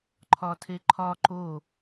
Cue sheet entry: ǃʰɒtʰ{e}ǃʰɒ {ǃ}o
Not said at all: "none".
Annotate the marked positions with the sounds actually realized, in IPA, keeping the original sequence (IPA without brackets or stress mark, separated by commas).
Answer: e, ǃ